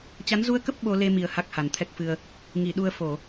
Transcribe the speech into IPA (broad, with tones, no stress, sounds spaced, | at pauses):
t͡ɕ a˨˦ n z u˧ ə̯ k ə˦˥ p̚ ɓ o˧ l e˧ m i˨˩ ə̯ h a˦˥ k̚ h a˨˩ n t̪ʰ ɛ˦˥ k̚ f ɨ˧ ə̯ | ŋ i˧˩ ɗ u˧ ə̯ f o˧˩˨